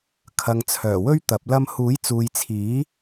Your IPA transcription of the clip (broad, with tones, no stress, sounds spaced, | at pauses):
kʰ ɐ˨ ŋ t͡sʰ œː˨˩ w ɵ˥ ɥ t̪ ɐ˨˥ p̚ l ɐ˥ m h uː˨˥ j t͡s uː˨ j t͡sʰ iː˨˥